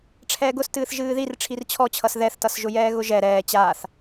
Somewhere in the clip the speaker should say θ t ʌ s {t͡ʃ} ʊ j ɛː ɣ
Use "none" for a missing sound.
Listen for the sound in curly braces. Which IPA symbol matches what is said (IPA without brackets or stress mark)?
ʒ